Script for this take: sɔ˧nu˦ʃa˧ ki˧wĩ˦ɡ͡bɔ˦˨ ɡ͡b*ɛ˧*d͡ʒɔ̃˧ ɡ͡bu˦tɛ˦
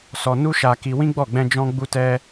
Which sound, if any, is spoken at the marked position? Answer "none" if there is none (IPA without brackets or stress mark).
ɛ̃˧